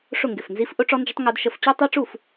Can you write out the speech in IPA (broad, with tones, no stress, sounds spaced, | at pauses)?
ʂ ʊ˥˩ ŋ ɡ ɪ˧˩ f n z i˦˥ f ʔ ʊ˦˥ ʈ͡ʂ ɔ˦˥ n d͡ʒ ʊ˦˥ tˤ ŋ u˦˥ d ʃ ə˦˥ f t͡ɕ u˦˥ tˤ i˦˥ ʈ͡ʂ u˥˩ f